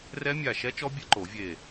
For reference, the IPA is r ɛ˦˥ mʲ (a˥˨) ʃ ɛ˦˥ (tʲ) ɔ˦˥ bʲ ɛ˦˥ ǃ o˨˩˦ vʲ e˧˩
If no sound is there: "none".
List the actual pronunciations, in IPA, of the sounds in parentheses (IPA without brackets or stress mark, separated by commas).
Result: a˧˩, t͡ʃ